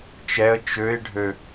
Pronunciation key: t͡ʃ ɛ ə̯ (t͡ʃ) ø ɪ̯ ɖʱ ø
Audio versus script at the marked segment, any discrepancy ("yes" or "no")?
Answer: no